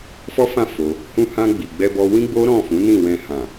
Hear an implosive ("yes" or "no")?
no